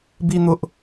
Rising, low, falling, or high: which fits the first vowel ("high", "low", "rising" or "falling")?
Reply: high